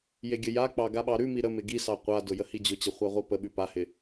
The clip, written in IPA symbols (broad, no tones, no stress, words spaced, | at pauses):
jeɡʲəjak͡pɑ ɡaɓɑɾʉmi ɾəmɪ ɡisɑ qʷadʊ jəhid͡ʑʊt͡ɕə χʷaʁʷipəɓʉ pahɪ